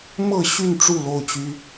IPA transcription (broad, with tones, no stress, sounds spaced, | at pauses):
m ɤ˥˨ ɕ y˥˨ n ʈ͡ʂ u˥˨ l o˥˨ ʊ̯ t͡ɕ y˦